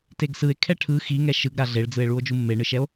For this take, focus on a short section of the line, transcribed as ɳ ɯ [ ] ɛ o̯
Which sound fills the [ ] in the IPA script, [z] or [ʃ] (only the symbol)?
ʃ